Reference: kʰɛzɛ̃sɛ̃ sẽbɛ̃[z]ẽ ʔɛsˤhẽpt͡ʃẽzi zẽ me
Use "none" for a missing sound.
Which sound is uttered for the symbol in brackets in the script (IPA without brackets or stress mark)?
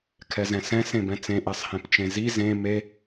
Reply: t͡s